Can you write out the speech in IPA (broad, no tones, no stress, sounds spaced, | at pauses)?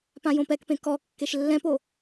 p ã j õ p ɛ k p ẽ k ɔ kː e ʃ lː ɛ̃ p o